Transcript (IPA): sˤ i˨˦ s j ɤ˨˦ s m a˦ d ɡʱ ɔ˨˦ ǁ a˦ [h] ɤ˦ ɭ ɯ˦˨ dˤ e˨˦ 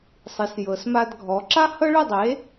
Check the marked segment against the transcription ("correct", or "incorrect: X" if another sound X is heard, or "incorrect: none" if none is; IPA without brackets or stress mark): correct